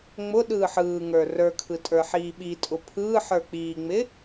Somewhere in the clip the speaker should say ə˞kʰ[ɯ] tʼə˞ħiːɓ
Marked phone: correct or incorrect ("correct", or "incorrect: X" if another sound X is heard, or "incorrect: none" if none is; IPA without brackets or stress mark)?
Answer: correct